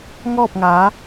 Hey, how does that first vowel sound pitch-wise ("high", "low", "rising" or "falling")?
falling